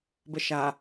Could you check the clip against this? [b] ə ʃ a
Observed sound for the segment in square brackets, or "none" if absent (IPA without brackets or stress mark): b